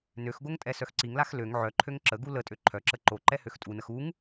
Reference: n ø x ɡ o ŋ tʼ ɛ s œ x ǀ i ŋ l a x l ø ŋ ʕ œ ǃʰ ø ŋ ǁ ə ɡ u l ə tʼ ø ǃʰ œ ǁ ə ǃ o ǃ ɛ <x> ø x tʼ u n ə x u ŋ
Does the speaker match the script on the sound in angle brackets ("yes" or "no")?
no